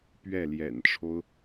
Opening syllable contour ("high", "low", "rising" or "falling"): falling